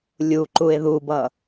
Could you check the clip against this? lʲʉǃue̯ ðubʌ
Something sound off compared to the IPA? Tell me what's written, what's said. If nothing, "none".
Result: ʉ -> u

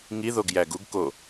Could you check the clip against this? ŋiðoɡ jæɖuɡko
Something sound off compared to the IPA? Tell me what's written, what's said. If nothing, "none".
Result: ɖ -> ɡ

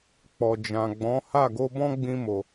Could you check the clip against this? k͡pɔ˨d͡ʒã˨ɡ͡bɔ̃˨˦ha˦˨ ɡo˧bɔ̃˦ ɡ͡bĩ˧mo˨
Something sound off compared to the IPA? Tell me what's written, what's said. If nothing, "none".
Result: none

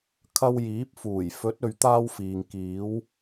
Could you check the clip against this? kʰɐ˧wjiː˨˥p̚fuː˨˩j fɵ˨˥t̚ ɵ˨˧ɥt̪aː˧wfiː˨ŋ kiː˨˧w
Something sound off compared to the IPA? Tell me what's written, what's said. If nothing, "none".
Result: none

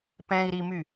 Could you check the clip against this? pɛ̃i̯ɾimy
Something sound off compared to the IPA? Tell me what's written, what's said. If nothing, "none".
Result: none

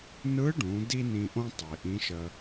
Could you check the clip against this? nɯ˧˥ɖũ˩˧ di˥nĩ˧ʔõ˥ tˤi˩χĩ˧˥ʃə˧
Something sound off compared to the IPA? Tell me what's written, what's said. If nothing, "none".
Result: χ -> ʔ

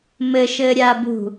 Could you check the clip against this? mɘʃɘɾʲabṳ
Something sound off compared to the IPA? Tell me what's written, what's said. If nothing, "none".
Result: none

